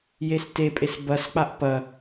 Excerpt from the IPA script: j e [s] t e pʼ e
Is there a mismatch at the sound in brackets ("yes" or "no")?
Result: no